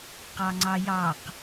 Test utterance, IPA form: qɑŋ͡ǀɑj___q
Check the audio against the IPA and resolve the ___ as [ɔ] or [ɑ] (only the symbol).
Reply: ɑ